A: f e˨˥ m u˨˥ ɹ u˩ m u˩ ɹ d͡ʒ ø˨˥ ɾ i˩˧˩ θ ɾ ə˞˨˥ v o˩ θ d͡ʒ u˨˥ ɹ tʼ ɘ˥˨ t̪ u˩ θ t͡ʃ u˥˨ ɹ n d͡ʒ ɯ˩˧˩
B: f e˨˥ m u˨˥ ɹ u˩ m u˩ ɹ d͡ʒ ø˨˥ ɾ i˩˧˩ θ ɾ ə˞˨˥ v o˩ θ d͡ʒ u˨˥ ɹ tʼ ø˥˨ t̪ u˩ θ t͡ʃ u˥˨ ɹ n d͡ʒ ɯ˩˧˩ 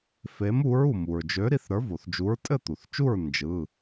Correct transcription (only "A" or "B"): A